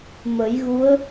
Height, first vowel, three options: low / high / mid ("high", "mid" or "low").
mid